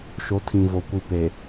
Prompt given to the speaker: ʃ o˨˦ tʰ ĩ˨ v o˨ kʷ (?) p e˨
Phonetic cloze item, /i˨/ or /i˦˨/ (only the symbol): i˨